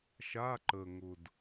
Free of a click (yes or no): no